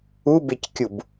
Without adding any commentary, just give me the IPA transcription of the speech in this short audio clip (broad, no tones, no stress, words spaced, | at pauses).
ubeckʲub